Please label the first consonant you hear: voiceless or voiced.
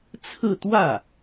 voiceless